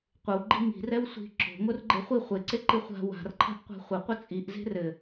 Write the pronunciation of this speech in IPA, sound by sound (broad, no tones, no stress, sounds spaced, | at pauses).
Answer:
qʷ ɨ w ɡ͡ǃ i ŋ i̤ r ɛ w sʷ i̤ ǁ o̤ ŋ o r ɡ͡ǃ e χʷ i χʷ e ǀ e ǃ ɨ χʷ a̤ w a̤ r ǃʰ a̤ ʔ qʷ a̤ χʷ ɘ qʷ ɘ t͡sʼ i ʔ z e̤ r ɘ